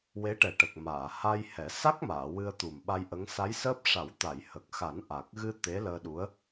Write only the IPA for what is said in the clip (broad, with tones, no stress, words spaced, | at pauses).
we˧˥ʈɛ˨˩ʈə˨˩k̚ maː˨˩˨ha˧jhɛ˨˩˦ sa˦˥k̚maː˨˩˨ wɨ˧ə̯t̪u˨˩mɓa˧jʔə˧˥ŋ sa˧˥jsəː˦˥p̚ ʂa˨˩˦wt̪a˨˩˨jhə˨˩k̚xa˨˩˦n ʔa˨˩k̚ ɣɨ˧ t̪e˧˥ləː˧ɗu˧˥ə̯